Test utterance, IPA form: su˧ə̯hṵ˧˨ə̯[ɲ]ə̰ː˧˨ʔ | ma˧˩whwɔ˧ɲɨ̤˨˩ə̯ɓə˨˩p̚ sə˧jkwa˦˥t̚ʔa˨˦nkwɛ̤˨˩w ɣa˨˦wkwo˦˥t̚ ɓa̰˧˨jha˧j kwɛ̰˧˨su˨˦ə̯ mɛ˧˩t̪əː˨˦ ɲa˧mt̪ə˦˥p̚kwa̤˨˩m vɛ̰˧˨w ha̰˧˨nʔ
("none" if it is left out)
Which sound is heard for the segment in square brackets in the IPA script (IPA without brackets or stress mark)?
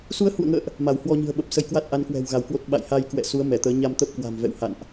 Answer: ŋ